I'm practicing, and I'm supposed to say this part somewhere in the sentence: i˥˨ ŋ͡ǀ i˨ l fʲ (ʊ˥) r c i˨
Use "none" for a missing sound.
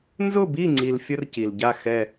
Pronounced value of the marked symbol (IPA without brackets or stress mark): ʊ˥